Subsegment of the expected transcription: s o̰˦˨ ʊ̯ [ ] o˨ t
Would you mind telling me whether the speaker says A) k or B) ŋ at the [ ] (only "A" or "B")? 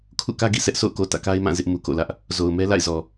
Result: A